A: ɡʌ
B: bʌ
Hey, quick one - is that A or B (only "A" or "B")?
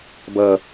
B